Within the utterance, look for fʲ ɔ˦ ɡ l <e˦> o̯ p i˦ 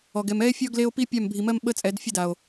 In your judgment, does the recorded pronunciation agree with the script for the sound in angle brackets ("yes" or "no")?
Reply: yes